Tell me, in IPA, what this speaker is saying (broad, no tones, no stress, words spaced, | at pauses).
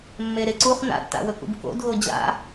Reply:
mːeɾeǀuχ na̰tːa̰wɵkṵb ko̰dɣo d͡ʑa̰